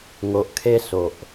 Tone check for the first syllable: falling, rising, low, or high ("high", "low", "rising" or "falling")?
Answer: low